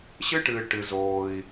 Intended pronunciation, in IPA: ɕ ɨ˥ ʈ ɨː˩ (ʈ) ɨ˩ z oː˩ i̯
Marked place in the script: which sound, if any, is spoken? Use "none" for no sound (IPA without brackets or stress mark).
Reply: ʈ